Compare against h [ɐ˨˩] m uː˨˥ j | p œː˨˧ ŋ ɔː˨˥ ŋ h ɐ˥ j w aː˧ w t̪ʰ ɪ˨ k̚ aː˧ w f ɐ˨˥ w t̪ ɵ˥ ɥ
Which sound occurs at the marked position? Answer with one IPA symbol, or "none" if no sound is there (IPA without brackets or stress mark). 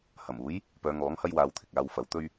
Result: ɐ˨˩